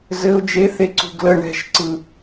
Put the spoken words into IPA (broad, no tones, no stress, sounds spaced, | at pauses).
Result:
z ɘ ʊ̯ d͡ʒ e θ e ǀ ṳ ɡ l ə ɳ ɛ̤ ʃ ǀ ɯ